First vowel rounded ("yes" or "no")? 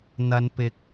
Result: no